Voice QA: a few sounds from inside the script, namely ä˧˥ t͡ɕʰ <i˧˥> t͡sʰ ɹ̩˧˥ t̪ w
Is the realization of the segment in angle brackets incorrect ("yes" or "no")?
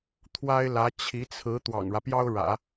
no